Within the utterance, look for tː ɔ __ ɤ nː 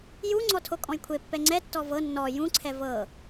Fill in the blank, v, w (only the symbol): v